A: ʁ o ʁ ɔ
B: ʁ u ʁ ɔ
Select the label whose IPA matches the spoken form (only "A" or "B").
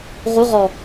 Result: B